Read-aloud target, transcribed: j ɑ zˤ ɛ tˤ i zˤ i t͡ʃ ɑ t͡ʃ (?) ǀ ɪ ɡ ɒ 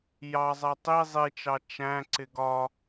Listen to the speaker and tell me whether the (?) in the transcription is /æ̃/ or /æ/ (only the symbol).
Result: æ̃